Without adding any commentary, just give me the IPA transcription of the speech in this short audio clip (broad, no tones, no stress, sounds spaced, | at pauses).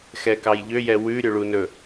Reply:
x ɛ k ɑ j ʎ ø j ɛ w ʉ ɾʲ ɵ ɭ u n ɵ